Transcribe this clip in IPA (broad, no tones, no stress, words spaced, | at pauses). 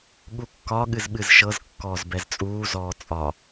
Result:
ɠukːɒ ɠɨzɓɨzʃɤz kːɔːzbɛzt͡sʼuː zɔːt͡sʼɒ